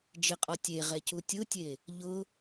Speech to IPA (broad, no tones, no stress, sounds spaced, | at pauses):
d͡ʒ ɪ qʼ ɔ tʲ e ʁ ɛ c u tʲ ʊ tʲ e | ʎ ʊ